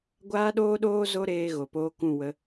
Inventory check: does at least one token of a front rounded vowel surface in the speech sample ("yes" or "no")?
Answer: no